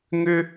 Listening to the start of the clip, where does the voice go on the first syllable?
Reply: high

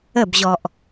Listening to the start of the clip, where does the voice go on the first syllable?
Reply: falling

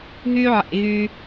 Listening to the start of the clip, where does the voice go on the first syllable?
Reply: high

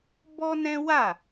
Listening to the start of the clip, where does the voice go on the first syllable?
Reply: high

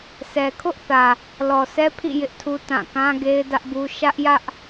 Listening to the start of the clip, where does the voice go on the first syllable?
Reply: low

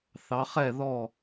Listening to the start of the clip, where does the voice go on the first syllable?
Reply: rising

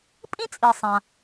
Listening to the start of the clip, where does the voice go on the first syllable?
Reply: high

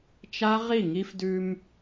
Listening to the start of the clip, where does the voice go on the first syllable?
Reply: high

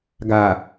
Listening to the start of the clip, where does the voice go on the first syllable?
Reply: low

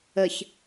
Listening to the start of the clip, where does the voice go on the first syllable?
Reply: low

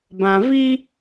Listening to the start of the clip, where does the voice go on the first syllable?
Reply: low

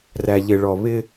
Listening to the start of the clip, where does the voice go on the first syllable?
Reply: low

